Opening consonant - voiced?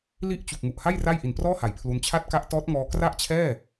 yes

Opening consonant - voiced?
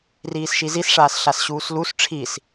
yes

